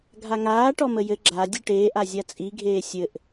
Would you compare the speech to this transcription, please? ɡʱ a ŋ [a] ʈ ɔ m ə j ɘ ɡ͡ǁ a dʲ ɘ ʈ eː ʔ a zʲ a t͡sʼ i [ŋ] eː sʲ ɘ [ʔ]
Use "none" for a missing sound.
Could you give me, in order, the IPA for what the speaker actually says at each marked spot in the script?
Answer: aː, ɡʱ, ʔ

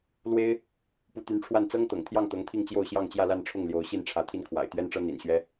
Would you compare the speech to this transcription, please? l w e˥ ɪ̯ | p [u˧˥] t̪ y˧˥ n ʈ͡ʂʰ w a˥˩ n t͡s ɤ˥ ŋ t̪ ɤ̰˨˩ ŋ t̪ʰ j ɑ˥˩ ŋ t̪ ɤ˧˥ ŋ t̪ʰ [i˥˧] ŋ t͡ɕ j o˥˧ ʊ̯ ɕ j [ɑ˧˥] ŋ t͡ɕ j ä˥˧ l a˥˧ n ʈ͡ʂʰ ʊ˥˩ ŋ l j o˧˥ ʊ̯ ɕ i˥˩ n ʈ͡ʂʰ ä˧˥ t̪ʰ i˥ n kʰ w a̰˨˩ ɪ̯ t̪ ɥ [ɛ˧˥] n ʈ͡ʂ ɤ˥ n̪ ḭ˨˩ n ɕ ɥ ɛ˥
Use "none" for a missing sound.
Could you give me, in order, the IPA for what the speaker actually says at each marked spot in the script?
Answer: u˧˥, i˥˧, ɑ˥˧, ɛ˥

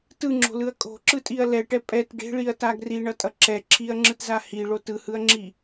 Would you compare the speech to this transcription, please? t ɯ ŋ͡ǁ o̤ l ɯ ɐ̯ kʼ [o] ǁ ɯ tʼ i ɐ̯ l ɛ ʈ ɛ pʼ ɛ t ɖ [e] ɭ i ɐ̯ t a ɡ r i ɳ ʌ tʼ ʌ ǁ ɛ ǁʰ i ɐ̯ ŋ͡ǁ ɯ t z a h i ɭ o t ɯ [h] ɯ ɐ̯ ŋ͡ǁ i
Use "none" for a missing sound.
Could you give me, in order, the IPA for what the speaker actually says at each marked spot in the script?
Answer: o̤, e̤, h

